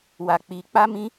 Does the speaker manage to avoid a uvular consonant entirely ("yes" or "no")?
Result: yes